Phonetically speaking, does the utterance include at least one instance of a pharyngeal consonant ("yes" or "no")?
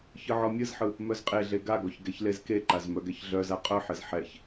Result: yes